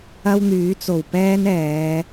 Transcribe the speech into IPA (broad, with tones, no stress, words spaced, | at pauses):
ɐ˥wn̪yː˨˥t͡so˨˩w pɛː˥nɛː˨˧